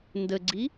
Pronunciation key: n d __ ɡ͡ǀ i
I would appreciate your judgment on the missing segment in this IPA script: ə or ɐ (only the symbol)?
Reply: ə